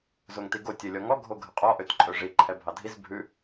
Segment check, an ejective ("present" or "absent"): present